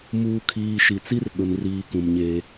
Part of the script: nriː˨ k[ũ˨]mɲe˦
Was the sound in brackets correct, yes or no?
yes